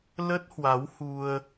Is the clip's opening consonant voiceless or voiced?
voiced